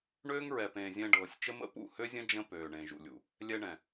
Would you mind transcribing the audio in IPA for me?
ɳøː˦ŋɹɛ˨pẽː˨ zʲɛ̃˧ɖɤː˨sʲ t͡ʃə˦ mə̰˦pṵ˦˨hø˦zʲə̃˦ d͡ʒə̃˧ pøː˨ɳẽ˨ʒṵ˨lʲṵ˨ | lʲɛ˧ɳɛ̃˨

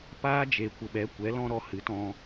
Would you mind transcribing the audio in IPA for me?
paː˦d͡ʒe˨ kʷə˨ɓɛ˨˦ kʷɛ˨˦lɔ̃˦ɾɔ˧ hɨ˨˦tɔ̃˧

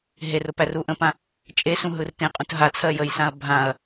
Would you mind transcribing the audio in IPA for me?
ɦerʊ pæruʔə̃pã | t͡ʃʼesũ ɦɯrtẽqʼũt ɦat͡sʰɜ jəjsãɐ̯ bʱãɐ̯

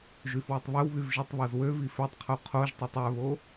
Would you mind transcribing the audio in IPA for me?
ʒyfwytˤβœwβyv ʒitˤβozwøvi føtˤqʰo qʰoʒtˤøtˤ œβo

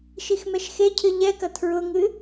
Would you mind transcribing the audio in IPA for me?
ʃixmɛʃxecʰɨ ʎɛkɐ tʰɹʊŋɨ

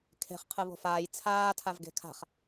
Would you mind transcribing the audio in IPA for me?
kʰe̤χ qʰɯβo̤faːj t͡sʰaː tʰavɡe̤kʰa̤χ

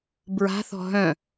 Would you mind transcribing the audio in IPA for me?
bɹa̤θɔ̤ ɦœ̃

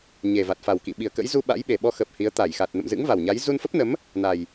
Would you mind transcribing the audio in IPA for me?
ɲe˨˩ va˨˩t̚fa˨˩wkḭ˧˨ ɓi˨˩ə̯kə̰˧˥jzu˧ ɓa̰˧˥j ɓe˨˩ɓɔ˧xəː˨˩p̚ hi˨˦ə̯ t̪a˧˩jxa˨˩t̚ nə̰˧˨mzɨ̰˧˥ŋva˨˩wɲa˨˦j zu˧nfə˦˥p̚nə˨˦m | na˨˩j

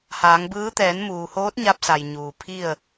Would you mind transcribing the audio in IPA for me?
haː˩˧ŋbɯː˧˥ t̪ɛː˩˧nmuː˩ hoː˧˥t̚ɲa˧p̚sa˩j ɲuː˩ pʰi˥˨ə̯

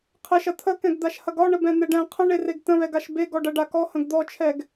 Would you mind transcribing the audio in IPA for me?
qʰɛʃɐ t̪ʰəkɛ̃ɡ d̪aʃhɐɡɒɳəb ɛ̃n̪ɛɖɛ̃ qʰə̃ɳereɡ tə̃βɛɡaʃ be ɡɔɖɐɖakɔ hə̃ɡd̪ɔt͡ʃʰɛɡ

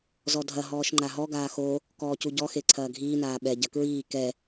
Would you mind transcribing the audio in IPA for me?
zɔdʱɐ ɦɔːʃŋ͡ǃaɦɔ ɡaːxo | kɔːcuɟɔ xeǀʰɐːɡʱiː naːɓɛ ɟɐkɹiː kɛ

